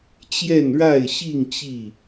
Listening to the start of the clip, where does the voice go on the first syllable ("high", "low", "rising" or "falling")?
falling